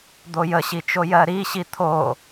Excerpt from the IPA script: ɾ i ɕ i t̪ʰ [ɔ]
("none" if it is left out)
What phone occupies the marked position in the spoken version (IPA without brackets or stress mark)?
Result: o